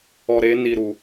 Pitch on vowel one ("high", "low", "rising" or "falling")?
low